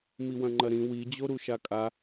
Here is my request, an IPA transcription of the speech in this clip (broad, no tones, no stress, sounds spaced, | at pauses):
m i w ɐ̃ ŋ͡ǃ ɐ ɾ ĩ w i d͡ʑ o ɾ u ʃ a kʼ a